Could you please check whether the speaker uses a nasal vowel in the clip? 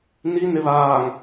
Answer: no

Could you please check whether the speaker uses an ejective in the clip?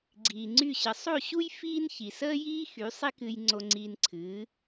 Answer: no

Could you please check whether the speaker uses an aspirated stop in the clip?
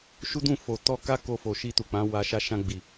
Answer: no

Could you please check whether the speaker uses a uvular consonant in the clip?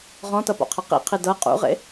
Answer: yes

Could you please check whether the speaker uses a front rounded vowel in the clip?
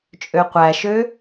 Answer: yes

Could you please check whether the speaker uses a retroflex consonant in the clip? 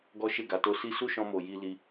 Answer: no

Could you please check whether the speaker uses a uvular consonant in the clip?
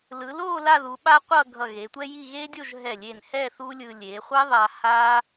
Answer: yes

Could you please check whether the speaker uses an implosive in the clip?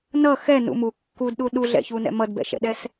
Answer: yes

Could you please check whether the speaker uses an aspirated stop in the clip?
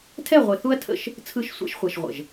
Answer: yes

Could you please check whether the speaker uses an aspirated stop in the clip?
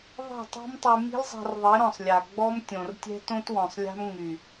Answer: no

